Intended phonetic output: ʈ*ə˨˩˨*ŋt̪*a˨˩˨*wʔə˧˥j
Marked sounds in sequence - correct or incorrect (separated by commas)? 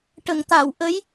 correct, correct